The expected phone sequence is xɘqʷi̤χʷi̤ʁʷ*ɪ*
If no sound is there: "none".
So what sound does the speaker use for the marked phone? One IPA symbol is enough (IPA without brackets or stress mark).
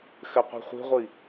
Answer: i